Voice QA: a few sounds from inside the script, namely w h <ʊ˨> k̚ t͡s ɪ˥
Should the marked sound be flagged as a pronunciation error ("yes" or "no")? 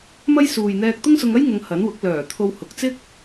no